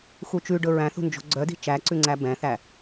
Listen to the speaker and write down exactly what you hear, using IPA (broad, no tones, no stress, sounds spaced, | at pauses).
x u t͡ʃ ʉ ɖ ɵ ɹ æ̃ θ ṳ n d͡ʒ o̤ ɡ͡ǀ œ d i̤ t͡ʃ æ ǀ ʉ ŋ͡ǀ æ b ɛ̃ θ æ